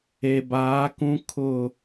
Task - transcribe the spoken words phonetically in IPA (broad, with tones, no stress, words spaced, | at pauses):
e˨baː˨˦kũ˦ kʰʊ˦˨